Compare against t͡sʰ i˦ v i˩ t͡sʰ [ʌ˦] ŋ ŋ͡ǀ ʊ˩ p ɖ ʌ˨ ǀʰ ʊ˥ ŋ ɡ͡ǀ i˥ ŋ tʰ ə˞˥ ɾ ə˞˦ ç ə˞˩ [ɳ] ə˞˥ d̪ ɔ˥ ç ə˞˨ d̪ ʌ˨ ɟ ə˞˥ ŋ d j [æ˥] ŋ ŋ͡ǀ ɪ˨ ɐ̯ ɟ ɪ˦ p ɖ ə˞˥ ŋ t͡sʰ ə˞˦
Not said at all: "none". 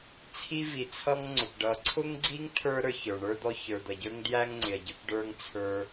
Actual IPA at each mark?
ʌ˦, ɳ, æ˥

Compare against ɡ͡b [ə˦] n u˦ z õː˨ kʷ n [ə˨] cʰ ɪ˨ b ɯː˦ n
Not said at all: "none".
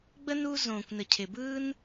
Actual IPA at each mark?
ə˦, ə˨

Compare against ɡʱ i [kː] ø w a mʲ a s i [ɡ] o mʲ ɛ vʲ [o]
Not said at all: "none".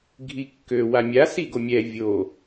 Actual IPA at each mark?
kː, ɡ, o

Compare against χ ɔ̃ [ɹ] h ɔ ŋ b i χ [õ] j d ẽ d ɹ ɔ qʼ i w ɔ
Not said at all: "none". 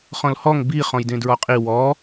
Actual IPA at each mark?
l, ɔ̃

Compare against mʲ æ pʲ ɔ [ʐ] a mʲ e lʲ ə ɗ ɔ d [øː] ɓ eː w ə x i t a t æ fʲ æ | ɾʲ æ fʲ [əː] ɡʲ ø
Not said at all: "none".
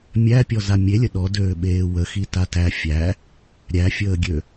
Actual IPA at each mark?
z, øː, əː

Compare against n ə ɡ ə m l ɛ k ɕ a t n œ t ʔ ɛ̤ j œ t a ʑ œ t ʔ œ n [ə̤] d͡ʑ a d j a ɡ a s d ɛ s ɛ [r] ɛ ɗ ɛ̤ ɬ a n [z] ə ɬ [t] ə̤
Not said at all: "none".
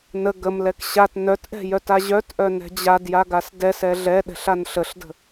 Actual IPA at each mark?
ɛ̤, ɮ, ɬ, d

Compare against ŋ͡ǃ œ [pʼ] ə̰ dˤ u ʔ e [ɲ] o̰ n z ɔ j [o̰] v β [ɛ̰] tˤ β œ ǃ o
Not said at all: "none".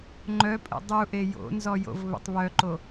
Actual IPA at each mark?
pʼ, j, o̰, ə̰

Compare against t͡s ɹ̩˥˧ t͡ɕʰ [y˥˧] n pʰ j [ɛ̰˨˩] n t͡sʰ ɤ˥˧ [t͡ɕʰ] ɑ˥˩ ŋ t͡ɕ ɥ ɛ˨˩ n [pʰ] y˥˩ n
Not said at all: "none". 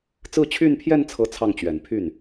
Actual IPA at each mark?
y˥˧, ɛ˥˧, t͡sʰ, pʰ

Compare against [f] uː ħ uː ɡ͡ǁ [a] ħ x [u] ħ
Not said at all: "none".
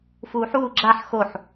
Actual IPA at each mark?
f, a, o

